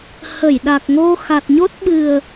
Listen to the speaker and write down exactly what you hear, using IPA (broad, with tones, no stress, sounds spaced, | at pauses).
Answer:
h ə˧˩ j ɗ a˨˩ k̚ ŋ o˧ x a˨˩ t̚ ɲ o˦˥ t̚ ɓ ɨ˨˩ ə̯